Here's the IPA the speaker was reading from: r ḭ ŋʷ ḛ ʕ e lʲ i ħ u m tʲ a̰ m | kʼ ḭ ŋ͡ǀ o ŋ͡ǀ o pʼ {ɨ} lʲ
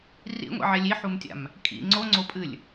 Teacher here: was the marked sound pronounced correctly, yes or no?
yes